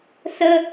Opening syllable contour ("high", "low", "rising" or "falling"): high